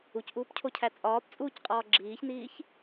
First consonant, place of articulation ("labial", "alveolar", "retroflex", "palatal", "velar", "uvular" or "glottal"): palatal